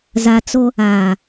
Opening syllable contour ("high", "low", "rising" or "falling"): low